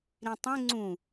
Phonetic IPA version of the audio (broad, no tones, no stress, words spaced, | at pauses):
ɾĩtˤẽ ŋ͡ǀũ